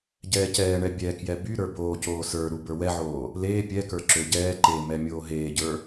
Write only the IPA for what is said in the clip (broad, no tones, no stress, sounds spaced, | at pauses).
ɟ ɛː c ɛː ɳ ɛ bʲ ɛ k j ɛ b y ɾ ə˞ b oː c oː s ə˞ ɾ u b ə˞ w ɛ ʕ oː | l eː pʲ ɛ k ə˞ ǁ ø ɟ ɛː ǃ eː m ɛ mʲ oː ɦ eː ɟ ə˞